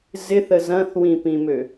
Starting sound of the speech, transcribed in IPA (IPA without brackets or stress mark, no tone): z